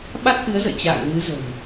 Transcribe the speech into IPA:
ɓ a˦˥ t̚ ʔ ɨ˨˦ ə̯ z ə̰˧˨ j t͡ɕ a̰ː˧˨ ŋ m ɨ˨˦ z ə̤˨˩ m

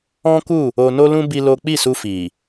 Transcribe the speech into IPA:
ɔ̃˦ k u˦˨ | o˧ n o˦ l ũ˦ b i˦ l o˦ k͡p i˦˨ s u˧ f i˨

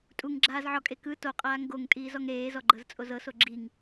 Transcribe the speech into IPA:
tʼ u ŋ ɡ͡ǁ aː z ʕ ɔ kʼ e k ɯ t o qʼ aː ŋ ɡ o ŋ tʼ iː z ɔ ŋ ɾ eː z ɔ ɡ͡ǃ ɤ z t͡sʼ o z ɤ s o ɡ͡ǁ i ŋ

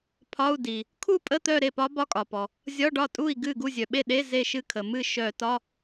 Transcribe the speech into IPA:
pʰ ɒ˧˥˧ u̯ d i˩ | kʰ u˥˧ pʼ ə˧˥˧ t̪ œ˥˧ ɾ e˥˩ p ɒ˧˥ b ɒ˧˥˧ kʼ ɒ˩ p ɔ˩ | zʲ ɒ˧˥˧ ɖ ɒ˥˩ tʼ u˥˩ i̯ ɡ ɨ˥˩ ɡ u˥˩ zʲ œ˩ ɓ e˥˩ ɗ e˧˥˧ z e˥˧ ʃ ɨ˥˧ kʰ ə˩ m ɨ˥˩ ʃ œ˧˩˧ t ɒ˧˥˧

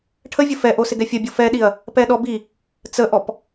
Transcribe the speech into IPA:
ʈʰ ə vʲ ə f ɛ ʔ o s ɪ ɡ ɛ fʲ ɐ bʲ o f ɛ ɗ i ɐ̯ | p ɛ ɗ ɔ b i | t͡s ə ʔ ɔ p

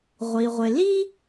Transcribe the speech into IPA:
ʁʷ i˩ ʁʷ ɪ˩ l i˥

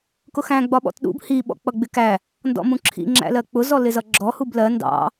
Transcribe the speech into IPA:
k ʊ x æ̃ ɡ͡b ɒ ɓ ɔ̰ t ɗ ṵ b h i ɓ ɔ̰ k͡p ʌ ɡ͡b ɪ k æ | n d ɔ̰ m ũ ǁʰ ḭ ŋ͡ǁ æ̰ l ɜ k͡p ʊ z ɔ l ɪ z ʌ ɡ͡ǁ ɔ h u b l ɜ n d ɑ̰

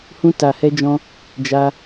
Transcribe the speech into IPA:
h ũ˦ t a˧ h ɛ˦ d͡ʒ ɔ̃˦ | d͡ʒ a˦

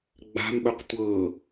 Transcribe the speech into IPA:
ɡ͡b a̤ m ɓ ɵ q tʷ ɤ

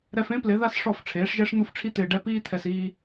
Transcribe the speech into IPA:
ɾ ɛ˧ f ẽ˦ p l ɪ˨˦ ð a˦ s ʂ ɔ˦˨ f ʈ͡ʂʰ eː˨˦ ʂ ʒ ɛ˦ ʂ n̪ u˦ f ʈ͡ʂʰ i˦ t̪ ɪː˧ ɖ ɛ˧ p iː˦ t̪ʰ ɛ˧ s iː˧

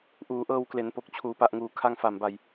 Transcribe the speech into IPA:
ʔ uː˩˦ ʔ ɤː˧ w k l e˩˦ n p o˨˩ k̚ t͡ɕʰ uː˩˦ p a˨˩ ʔ ŋ uː˩˦ kʰ a˧ ŋ f a˨˩ m b a˧ j

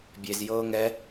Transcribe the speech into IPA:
bʲ e z j ɤː ŋ ɛ

